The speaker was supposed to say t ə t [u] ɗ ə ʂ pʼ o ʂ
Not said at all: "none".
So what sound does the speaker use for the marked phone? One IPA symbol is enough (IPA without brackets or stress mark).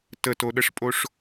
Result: o